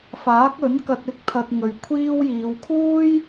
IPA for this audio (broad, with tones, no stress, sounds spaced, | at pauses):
f aː˨˥ k̚ ɵ˨˥ n k ɐ˧ t̚ ɪ˥ k̚ t̪ʰ ɐ˧ t̚ ŋ ɵ˨ ɥ kʷʰ iː˥ w j iː˨˧ w kʰ uː˥ j